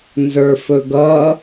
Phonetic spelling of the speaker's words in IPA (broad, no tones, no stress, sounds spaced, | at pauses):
n z ə˞ f ɵ ɡ ʌ